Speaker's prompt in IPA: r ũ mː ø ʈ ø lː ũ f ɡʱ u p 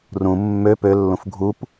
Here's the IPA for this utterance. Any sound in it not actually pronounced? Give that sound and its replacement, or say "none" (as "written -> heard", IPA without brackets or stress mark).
ʈ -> p